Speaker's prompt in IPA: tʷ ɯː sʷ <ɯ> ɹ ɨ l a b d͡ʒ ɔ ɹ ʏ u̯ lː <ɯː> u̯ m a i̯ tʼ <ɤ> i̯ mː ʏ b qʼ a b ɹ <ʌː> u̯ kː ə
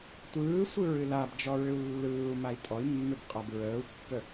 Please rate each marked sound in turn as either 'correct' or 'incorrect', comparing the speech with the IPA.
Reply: correct, correct, incorrect: ɔ, incorrect: əː

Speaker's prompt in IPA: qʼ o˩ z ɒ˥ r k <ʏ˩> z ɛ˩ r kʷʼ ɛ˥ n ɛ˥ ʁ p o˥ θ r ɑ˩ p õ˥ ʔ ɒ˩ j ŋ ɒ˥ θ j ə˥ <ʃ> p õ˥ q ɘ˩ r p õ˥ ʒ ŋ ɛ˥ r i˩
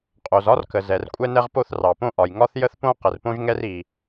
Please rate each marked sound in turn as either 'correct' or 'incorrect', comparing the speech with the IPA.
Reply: incorrect: ə˩, incorrect: θ

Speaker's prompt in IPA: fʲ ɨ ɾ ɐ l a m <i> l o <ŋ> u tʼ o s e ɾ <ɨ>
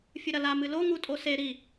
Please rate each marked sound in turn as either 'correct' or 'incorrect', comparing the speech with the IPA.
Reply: incorrect: ɨ, correct, incorrect: i

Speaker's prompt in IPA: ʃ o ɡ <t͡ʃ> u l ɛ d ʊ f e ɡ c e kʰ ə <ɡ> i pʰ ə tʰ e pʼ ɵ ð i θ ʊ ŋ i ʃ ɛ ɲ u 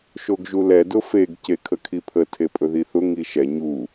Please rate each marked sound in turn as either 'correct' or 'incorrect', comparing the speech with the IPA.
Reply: incorrect: ʒ, incorrect: kʰ

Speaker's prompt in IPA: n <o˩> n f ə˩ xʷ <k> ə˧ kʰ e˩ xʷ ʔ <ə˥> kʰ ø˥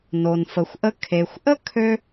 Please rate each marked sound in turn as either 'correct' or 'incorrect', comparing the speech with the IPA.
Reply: correct, incorrect: ʔ, correct

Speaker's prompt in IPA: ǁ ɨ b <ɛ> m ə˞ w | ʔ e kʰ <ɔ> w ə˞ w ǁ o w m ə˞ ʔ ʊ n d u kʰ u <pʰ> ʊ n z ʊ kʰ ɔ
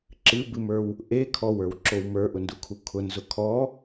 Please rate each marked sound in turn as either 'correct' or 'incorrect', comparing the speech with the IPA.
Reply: incorrect: ɨ, correct, incorrect: kʰ

